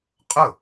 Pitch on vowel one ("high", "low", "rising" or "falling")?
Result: falling